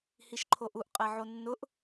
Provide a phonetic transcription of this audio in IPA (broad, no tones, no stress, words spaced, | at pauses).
hiʃǃʰoʔuʔ qʼɛʕonːʊʔ